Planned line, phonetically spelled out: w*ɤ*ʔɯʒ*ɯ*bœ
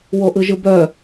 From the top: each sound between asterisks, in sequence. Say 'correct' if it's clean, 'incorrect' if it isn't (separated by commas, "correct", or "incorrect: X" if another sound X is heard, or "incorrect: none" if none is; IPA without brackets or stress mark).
incorrect: o, correct